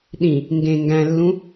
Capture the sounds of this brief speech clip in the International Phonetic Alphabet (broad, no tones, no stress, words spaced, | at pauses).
ɗĩ | ŋɡẽ ŋɡæ̃lːũ